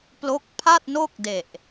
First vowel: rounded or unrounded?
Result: rounded